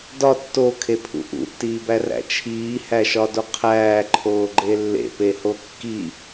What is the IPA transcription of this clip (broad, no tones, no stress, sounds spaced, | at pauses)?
d ɒ tː o kʰ e pʰ ṵ ʔ ṵ tː iː b æ r æ̰ t͡ʃʰ iː h æ ʃ ɒ d o qʰ æː ǃʰ oː ɡ͡ǃ e lː ḛ p e h o kː i